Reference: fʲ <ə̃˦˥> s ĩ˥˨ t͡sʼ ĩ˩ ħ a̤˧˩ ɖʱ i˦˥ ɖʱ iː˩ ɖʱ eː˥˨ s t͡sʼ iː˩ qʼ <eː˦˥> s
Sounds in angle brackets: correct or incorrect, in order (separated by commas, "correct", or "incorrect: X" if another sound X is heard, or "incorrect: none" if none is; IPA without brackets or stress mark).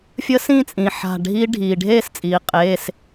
incorrect: ə˦˥, incorrect: eː˩˧˩